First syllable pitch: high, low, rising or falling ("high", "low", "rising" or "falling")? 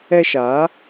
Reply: falling